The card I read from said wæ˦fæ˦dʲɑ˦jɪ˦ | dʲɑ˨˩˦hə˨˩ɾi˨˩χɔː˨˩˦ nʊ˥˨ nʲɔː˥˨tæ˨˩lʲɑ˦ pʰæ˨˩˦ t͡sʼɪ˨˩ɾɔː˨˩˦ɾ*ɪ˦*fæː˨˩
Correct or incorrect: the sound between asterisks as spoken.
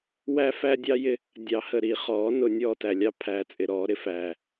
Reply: correct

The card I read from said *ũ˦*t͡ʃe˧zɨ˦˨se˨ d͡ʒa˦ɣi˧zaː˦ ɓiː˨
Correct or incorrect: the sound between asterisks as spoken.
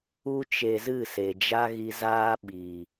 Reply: incorrect: u˦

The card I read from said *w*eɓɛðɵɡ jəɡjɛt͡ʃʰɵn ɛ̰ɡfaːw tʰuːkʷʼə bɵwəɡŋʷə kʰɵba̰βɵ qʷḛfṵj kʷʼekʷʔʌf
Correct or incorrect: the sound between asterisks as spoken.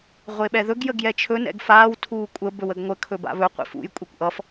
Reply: incorrect: ʁʷ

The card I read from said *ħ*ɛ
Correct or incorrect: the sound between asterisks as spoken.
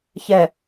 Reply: incorrect: ç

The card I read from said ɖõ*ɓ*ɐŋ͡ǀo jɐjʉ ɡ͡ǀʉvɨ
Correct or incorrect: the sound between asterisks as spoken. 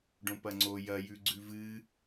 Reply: incorrect: p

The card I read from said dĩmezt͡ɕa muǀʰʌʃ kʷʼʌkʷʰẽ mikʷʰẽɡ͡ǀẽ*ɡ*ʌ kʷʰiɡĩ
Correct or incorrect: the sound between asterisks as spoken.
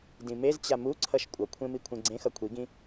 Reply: incorrect: x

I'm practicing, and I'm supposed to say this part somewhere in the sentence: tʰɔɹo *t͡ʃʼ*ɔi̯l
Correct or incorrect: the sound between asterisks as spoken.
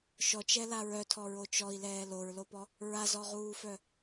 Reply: incorrect: t͡ʃ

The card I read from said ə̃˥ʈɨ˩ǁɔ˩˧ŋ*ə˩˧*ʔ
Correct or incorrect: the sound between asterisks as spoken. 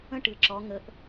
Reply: correct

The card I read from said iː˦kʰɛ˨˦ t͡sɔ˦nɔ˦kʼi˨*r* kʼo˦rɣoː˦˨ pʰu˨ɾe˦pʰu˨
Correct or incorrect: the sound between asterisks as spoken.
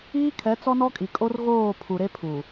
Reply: incorrect: none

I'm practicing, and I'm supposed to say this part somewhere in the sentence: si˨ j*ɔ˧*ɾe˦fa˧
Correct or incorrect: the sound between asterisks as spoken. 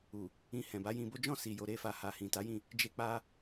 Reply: incorrect: o˧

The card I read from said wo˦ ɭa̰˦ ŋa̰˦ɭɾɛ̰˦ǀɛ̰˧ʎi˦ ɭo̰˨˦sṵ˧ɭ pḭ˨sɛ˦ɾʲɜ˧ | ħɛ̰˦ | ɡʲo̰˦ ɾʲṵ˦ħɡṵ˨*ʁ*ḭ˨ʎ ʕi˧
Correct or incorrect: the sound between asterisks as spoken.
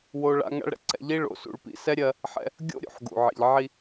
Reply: incorrect: ʕ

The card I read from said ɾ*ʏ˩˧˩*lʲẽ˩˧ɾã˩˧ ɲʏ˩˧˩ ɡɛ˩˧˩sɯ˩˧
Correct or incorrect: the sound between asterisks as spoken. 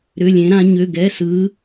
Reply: correct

